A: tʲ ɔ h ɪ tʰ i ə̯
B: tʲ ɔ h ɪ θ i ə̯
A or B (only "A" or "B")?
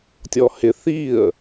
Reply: B